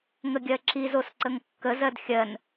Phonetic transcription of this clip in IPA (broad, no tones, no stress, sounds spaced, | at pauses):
ŋ ə ɡʲ ɜ ǁ i z o s ǀ ə ŋ kː ə z ɜ d xʲ ɜ n